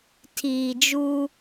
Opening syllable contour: low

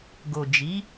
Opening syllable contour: low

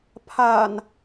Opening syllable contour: low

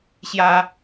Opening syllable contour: high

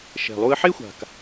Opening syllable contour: low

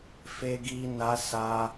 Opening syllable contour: high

